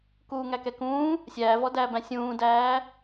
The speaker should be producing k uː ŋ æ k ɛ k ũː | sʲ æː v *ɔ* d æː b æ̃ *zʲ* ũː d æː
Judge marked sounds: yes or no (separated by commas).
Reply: yes, no